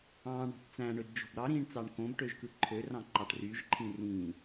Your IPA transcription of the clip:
ɑ̃ ɳ ɑ̤ ʈ t͡s æ̃ ɳ ø d d͡ʒ o̤ b ɾ ɑ ɾ ĩː ɳ t͡s ɑ ɳ k õ b ʈ ø ʒ k ɯ ǃʰ ø r ɑ̃ ǃ ɑ ʈ r y ʒ ǃʰ ĩ r ĩ

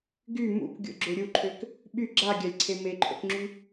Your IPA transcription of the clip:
ɡ y m ṵ k ɡʲ o̰ ɡ͡ǁ ø ɾʲ u ǃʰ ø k | ɓ y ɡ͡ǁ a ɡʲ a lʲ ǀʰ e m e ǃʰ o̰ k ŋ͡ǁ y

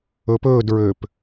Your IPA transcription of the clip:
ɵ p ɵː d ɹ ø p

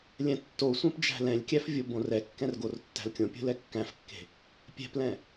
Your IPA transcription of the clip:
lʲ ɛ̃ tː o sʷ ɛ̃ p d͡ʒ æ̤ l ɛ̃ lʲ kʲ æ f vʲ o b õ r ɛ kː ɛ̃ r ɡ o r tː æ̤ l kʲ õ pʲ o̤ l ɛ kː æ̃ f kː e̤ | pʲ ɛ̤ p l ɛ̃

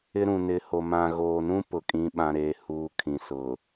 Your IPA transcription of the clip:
ɪ˦ ɾ ũ˨ n ɪ˨˦ h o˨ m ã˨ ɣ oː˨ n ũ˦ p ʊ˨ kʼ ĩ˦ ɓ ã˦ ɾ eː˦ h uː˦ kʰ ĩ˨ s ʊ˨

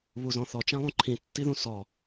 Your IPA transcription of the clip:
β u z ɔ̃ θ ɔ t͡ʃ ã lˠ ũ ǃʰ ĩ tː i ð ũ s ɔ

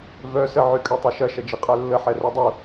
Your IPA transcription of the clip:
v œ s ə ʕ y kʼ ø tˤ y ʃ ɐ ʃ ɐ d͡ʒ i qʼ œ lː ə ħ ɛ r ɛ dˤ u

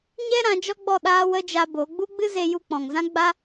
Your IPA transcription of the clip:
ɲ ɛ˦ ɾ ã˨˦ d͡ʒ ɔ˦ ɡ͡b ɔ˦˨ ɗ aː˧ w ə˧ d͡ʒ a˧ b o˨˦ ɡ͡b u˦ ɡ͡b ɨ˦ z e˧ j u˧ k͡p ɔ̃˨ ŋ z ã˦ ɡ͡b a˦

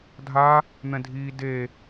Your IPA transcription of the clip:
dʱ a | n̪ ɛ̃ dʱ iː d e

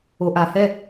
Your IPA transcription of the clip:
o˧ ʔ a˧ h ɛ˥˧

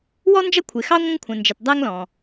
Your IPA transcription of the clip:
w ɔ˥ n d͡ʒ ʌ˥ kʷʰ ɪ˨ x ɑ˥ ŋʷ ə̃˥ ŋ kʷʰ ə̃˨ n d͡ʒ ɪ˨ t dˤ æ˦ ŋ l ɔ̃˩

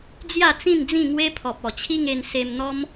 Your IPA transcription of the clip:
d͡z j a˥˧ t͡s ĩ˥˧ n d͡z ĩ˥˧ ŋ w e˦ pʰ ɔ˨ p̚ ɔ˨˩ t͡ɕʰ i˦ ŋ e˧ n s e˧ m n̪ ɔ˦ m

